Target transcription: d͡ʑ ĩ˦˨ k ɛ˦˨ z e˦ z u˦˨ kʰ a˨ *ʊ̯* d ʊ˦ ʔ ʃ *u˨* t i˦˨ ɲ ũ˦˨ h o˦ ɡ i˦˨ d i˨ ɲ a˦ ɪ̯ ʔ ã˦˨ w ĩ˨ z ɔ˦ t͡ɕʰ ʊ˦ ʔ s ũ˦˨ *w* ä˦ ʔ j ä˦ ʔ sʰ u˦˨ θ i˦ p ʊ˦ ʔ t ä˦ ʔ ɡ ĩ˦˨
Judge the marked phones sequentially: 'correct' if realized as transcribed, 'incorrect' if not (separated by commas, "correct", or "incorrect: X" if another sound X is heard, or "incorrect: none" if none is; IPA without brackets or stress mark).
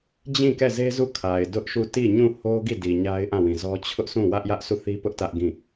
incorrect: ɪ̯, incorrect: u˦˨, correct